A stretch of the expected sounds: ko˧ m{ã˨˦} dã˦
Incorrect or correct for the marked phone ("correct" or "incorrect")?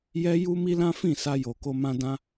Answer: incorrect